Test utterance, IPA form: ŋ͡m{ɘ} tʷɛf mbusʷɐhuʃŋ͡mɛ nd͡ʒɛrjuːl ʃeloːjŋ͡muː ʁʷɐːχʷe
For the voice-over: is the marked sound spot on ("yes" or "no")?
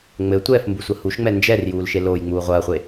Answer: yes